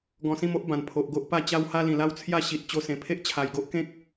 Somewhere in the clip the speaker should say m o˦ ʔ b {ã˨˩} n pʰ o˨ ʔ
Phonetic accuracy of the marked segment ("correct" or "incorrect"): correct